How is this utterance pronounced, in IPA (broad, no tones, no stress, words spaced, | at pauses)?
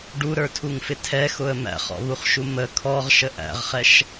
ɖuɾə˞tʰuŋfɪ tʰɛxʊə̯ mæ̰χɔ̰βuχʃu mə kʰɔʁʃə ʔæ̰ʁχɛʃ